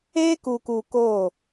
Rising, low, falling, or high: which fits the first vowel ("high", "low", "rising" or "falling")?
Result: high